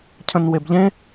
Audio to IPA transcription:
cʰ ə̃ n w e b ʎ ẽ

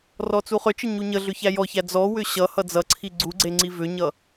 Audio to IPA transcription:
r ɔ t͡s u χ ʏ t͡ʃ ə ɲ u ɲ ə ɮ ʏ ç æ j ɔ ç æ d͡z ɔ w ʏ ɕ ʌ h ʌ d͡z ʌ ǀʰ i ɡ͡ǀ u ɡ͡ǀ e ŋ͡ǀ i v ʏ ɲ ʌ

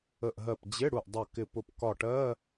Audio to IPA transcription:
ə˧˩ ʔ ɦ ɜ˧˩ p d͡ʑ ɪ˧˥˧ ɽ u˧˩ ʔ dˤ ʌ˧˩ k ɪ˧˩ p ʊ˧˩ p k ɒ˧˩ ʈ ɜ˧˥˧

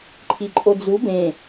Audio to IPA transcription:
ǃʰ i ǃʼ o d͡z u b ẽ

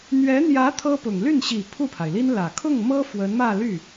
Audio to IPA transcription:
n̪ ɥ ɛ˧˥ n̪ j ä˧˥ t̪ʰ ɤ˥ p ʊ˨˩ ŋ l y˥˩ n ɕ i˨˩ pʰ u˥˩ pʰ a˩ ɪ̯ l i˥ n l ä˨˩ kʰ ʊ˥˩ ŋ m ɤ˥ f w ə˧˥ n m ä˥˧ l y˥˩

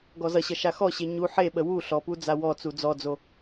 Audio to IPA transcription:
ɡ ɔ z ʌ ɕ ʌ ʃ a x ɔ ɕ e ɲ u ħ e ɓ ə w u ɬ ɔ p u d͡z a w ɔ t͡s u d͡z ɔ d͡z o

